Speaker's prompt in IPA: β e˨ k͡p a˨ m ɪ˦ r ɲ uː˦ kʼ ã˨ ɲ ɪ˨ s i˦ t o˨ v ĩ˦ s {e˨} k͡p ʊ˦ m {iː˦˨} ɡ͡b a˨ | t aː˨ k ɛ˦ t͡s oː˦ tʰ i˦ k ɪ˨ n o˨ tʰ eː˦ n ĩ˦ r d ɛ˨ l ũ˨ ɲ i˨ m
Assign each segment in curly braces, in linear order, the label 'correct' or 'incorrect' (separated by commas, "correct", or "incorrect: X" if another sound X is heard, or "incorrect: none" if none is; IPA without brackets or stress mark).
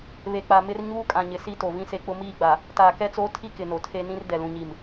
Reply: incorrect: e˦, correct